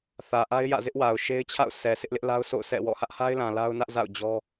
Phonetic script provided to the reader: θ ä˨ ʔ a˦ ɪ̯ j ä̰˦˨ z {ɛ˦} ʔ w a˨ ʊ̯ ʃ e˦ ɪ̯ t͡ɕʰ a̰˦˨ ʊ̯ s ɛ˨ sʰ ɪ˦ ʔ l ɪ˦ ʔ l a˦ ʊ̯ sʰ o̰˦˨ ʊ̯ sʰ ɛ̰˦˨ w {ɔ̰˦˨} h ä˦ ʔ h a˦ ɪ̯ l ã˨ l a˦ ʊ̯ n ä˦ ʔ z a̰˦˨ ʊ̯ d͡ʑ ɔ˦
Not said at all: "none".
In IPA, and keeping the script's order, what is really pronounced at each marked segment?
ɪ˦, ɔ̰˦˨

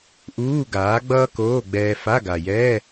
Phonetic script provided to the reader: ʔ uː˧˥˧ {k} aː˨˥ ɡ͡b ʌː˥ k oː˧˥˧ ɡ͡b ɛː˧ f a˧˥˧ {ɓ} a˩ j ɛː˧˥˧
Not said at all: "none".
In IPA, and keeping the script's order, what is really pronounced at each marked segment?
ɡ, ɡ

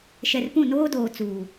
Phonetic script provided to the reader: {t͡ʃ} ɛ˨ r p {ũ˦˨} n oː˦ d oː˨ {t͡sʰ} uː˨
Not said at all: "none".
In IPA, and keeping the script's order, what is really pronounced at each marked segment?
ʃ, ũ˦˨, t͡s

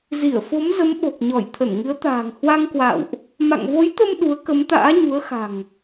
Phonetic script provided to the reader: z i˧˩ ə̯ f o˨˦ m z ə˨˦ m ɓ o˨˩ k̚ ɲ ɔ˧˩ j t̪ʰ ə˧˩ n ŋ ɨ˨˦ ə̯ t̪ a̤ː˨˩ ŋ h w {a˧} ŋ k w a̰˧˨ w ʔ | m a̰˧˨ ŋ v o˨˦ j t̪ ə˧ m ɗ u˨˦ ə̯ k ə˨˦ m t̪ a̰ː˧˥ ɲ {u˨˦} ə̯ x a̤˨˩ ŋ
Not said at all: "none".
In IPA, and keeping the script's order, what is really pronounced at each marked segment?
a˧, u˨˦

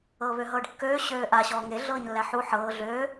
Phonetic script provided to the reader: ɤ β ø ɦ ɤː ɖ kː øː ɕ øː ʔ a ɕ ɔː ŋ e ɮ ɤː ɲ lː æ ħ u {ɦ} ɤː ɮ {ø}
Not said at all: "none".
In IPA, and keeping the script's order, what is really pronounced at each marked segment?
ħ, øː

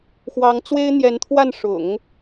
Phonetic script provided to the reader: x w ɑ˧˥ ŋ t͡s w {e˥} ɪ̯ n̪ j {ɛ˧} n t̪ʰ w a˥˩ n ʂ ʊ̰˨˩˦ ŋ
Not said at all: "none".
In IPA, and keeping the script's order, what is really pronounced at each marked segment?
e˥, ɛ˧˥

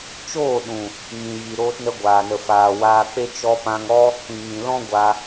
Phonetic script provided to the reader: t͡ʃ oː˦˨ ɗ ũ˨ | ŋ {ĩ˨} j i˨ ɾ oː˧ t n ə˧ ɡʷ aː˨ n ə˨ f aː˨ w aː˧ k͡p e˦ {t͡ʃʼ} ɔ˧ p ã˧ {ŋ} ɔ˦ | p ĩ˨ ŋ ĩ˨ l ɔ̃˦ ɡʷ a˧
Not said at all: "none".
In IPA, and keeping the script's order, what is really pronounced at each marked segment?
ĩ˨, t͡ʃ, ŋ

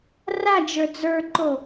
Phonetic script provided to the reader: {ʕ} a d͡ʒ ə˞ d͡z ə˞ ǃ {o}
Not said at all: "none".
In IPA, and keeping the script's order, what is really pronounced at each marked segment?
r, o

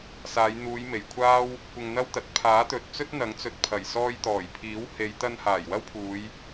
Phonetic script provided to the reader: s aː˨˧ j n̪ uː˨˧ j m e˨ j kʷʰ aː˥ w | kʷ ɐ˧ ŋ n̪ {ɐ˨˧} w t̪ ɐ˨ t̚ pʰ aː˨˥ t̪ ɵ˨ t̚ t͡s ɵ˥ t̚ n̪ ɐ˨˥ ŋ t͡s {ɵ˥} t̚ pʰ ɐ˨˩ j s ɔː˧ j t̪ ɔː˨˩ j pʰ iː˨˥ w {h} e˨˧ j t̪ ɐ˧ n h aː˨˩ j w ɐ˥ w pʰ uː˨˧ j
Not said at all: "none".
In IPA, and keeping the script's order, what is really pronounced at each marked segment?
ɐ˥, ɵ˨, h

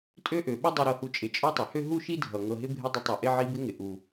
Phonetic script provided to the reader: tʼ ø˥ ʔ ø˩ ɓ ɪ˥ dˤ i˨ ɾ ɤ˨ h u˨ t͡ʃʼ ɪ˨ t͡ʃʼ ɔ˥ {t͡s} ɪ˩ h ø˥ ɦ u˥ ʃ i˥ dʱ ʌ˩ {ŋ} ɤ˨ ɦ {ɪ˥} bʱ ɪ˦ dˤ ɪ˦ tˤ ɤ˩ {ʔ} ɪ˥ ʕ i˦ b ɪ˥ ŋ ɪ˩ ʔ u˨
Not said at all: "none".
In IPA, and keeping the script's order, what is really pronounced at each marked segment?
tˤ, ŋ, ɪ˥, ʔ

